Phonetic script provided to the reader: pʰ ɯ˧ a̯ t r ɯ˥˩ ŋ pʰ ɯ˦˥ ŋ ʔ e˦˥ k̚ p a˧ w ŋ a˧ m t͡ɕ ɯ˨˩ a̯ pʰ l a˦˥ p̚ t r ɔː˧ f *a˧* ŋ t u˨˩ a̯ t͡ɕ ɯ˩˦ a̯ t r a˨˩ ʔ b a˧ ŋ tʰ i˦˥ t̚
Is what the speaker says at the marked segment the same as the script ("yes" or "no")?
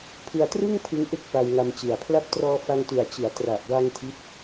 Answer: yes